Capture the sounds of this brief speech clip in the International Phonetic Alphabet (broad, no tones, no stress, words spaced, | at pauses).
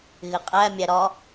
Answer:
ɣɪqʼæ mʲæɾɒ